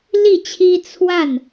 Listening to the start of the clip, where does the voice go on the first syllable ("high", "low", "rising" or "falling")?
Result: falling